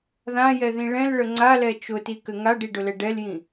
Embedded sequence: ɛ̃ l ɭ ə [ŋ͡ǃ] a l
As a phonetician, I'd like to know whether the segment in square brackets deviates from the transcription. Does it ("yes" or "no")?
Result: yes